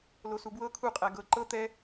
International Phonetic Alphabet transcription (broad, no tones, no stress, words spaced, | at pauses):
losubwɤ kʰu qʼæɡɤ ǃɤ t̪ɛ